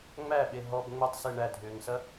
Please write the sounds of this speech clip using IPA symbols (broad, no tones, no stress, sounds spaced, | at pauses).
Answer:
ŋ͡m æ ɓ e ɦ ɔ b ŋ͡m ʏ tˤ s e ɳ æ dʱ ʏː ŋ s ɐ